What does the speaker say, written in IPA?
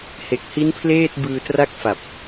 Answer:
he˨˩k̚ hi˦˥npʰleː˥˩t̚ bɯː˧tra˥˩k̚fa˨˩p̚

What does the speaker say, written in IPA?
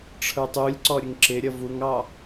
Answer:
ʈ͡ʂʰə˞tˤulʲǀɔ ɾʲəŋǁɪɾʲʌ vuŋɑ

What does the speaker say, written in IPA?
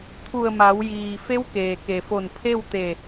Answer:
t̪ʰu˧˩ə̯ma˩˧wjiː˩ fe˧˥wkeː˩ke˩fo˧˩n pʰe˥˨wt̪e˧˩

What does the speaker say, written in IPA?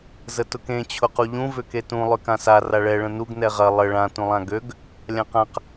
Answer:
zətʊkẽ t͡ɕʰʊquʎũ vʏketũ lˠʏkãsa raɭɛ ɭə̃nuɡ nɛʁɐ lˠə ɭã tũlˠãɡøɡ | lʲãqãq

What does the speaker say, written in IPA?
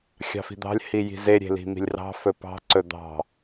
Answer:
xʲɑ̤fi̤d̪ɑ̤lʲ hiji̤ze ɾʲe̤li̤mi̤lʲrɑ̤ fɵpɑ̤ ǀɵd̪ɑ̤

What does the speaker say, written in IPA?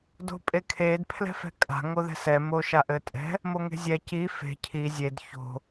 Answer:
do̤pʼekʰed pʰlɛ̤fɛ̤kʼa̤ ŋoðɛ̤sɛ moʃaʔɘtʼɛ̤ | moŋe̤zʲɛ ci fe̤ cʰi zʲed ço̤

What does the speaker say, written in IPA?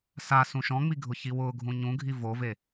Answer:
sa sũʃɔ̃ŋ͡mi ɡʱʊçiwʊːɡʱũ ɲũɡʱi vove

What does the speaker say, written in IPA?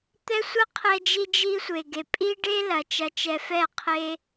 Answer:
t̪ɛ˧ sʷɐ˦qʰɛ˧ d͡ʒi˧d͡ʒi˧ sʷe˨ɡe˨ pʼi˦ɖe˦lɐ˨ t͡ʃɐ˧t͡ʃɛ˧fɛ˦˨ qʰe˦

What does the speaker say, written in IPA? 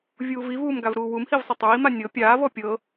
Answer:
vʲuːvivuːm ɡavɾuːwumhiv sˤatˤɹima nʲɤ pʲaːvɔ pʲɤ

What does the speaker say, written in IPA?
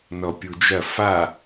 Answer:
nɔpʲud͡ʒɐ fa

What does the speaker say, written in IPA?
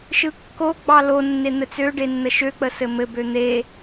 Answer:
ʃɯkːoɡ͡bɑ lonːe n̪ɘt͡søɖe nːəʃøk͡pə sɘmɘbø n̪e

